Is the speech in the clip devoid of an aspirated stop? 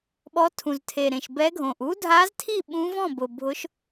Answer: no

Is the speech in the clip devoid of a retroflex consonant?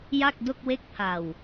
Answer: yes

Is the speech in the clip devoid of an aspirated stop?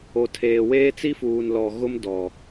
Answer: no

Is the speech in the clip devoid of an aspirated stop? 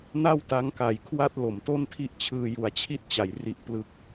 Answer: no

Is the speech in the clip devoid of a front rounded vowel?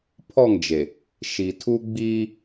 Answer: yes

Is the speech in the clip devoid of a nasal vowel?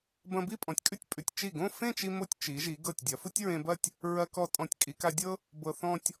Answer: no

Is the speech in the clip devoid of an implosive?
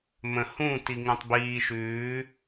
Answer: yes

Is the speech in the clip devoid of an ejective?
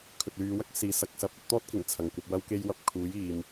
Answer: yes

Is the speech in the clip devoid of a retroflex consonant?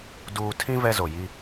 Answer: yes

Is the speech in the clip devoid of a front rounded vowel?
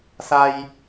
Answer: yes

